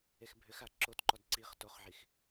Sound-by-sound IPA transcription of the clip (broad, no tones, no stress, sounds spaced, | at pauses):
e x bʱ ʏ x a ǁ o t ǃ ɔ d ǀ i χ t o χ ʕ i x